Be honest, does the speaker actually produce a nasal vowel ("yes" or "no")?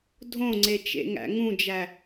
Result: yes